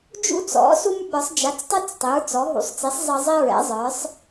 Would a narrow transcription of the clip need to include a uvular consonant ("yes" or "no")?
no